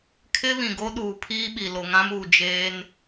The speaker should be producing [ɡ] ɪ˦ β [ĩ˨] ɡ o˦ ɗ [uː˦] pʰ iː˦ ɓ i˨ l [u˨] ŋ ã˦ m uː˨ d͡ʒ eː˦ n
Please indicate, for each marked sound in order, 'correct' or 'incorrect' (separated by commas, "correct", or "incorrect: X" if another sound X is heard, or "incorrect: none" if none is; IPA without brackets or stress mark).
incorrect: kʰ, correct, incorrect: uː˨, incorrect: o˨